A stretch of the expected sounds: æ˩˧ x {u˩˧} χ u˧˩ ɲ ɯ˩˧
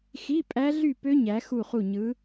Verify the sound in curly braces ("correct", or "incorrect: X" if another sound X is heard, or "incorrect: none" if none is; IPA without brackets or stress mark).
incorrect: u˧˩